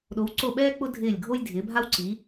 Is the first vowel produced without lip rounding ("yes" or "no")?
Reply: no